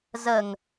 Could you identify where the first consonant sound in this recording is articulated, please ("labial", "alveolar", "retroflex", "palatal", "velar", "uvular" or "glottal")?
alveolar